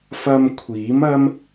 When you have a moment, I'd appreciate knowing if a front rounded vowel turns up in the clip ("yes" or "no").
no